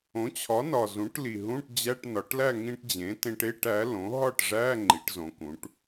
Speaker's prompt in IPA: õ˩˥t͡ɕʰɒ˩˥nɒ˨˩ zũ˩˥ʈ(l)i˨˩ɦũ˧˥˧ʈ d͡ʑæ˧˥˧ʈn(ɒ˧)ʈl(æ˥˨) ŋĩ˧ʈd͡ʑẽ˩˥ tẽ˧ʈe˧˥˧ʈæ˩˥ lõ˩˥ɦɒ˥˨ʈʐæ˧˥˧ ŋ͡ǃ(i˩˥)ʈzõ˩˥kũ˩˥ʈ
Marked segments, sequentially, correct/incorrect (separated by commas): correct, incorrect, correct, correct